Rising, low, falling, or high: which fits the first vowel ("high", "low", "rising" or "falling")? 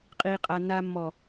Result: low